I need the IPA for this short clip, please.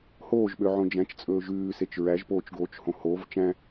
hoːʒɓø ʕõd͡ʒæ̃t͡ʃt͡sʼɵː ʒʉːset͡ʃ ɹæʒpoːt͡ʃɡoːt͡ʃhõ hov t͡ʃæ̃

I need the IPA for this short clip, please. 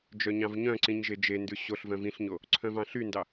d͡ʒœɲɑ̃vɲœ̃ǀĩɲ ʒed͡ʒendʉ ɕoɬ vœ̃vĩɬɲo | ǀʰœ̃vɑ̃ɬyndɑ

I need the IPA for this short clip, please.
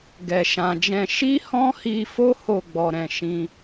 ɡɛ˨ʃã˨d͡ʒɛ̃˧ ʃi˦hɔ̃˦hi˧fo˦ ho˦˨ɡ͡bɔ˨ɾɛ̃˨ ʃĩ˧

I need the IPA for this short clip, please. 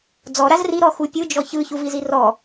d͡zɔ ɾazri ɾɔxupʲɯ d͡ʒɔçɯ çuvizirɔ

